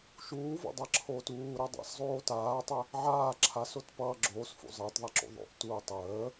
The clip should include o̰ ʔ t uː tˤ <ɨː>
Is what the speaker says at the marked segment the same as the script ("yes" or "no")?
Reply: no